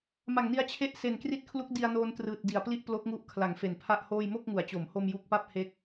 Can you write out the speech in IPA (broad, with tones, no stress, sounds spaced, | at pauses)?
m a˨˩ ŋ n i˧ a̯ t͡ɕʰ e˥˩ ʔ s e˨˩ n k r i˦˥ t̚ kʰ l u˦˥ k̚ d i˧ a̯ n oː˧ n t r ɯː˨˩ t̚ d i˨˩ a̯ p l i˥˩ ʔ p l o˦˥ k̚ ŋ u˦˥ ʔ kʰ l a˩˦ ŋ f e˨˩ n pʰ a˥˩ ʔ h oː˥˩ j m o˥˩ k̚ ŋ u˩˦ a̯ t͡ɕ o˩˦ m h o˧ m j u˦˥ k̚ p a˥˩ p̚ h e˦˥ k̚